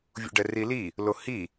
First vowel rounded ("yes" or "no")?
yes